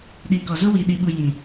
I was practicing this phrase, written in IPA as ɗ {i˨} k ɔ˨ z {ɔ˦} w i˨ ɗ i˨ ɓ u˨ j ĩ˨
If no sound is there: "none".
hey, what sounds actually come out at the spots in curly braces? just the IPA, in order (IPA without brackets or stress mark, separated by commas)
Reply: i˨, o˦